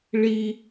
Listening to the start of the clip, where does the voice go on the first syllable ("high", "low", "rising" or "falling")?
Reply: high